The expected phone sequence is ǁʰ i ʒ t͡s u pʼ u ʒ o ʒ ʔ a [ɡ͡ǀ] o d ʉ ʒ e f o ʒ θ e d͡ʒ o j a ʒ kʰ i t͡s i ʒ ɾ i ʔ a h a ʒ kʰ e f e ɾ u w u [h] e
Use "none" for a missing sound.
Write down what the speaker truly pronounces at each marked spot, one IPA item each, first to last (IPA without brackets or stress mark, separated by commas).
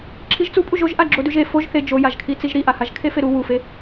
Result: ɡ͡ǁ, f